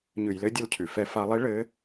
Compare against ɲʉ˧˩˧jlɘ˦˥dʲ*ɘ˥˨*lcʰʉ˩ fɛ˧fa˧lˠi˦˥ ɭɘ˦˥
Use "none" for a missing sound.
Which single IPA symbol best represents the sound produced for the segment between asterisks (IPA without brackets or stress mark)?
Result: ɘ˥˨